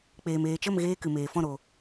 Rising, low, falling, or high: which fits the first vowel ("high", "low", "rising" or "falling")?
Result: low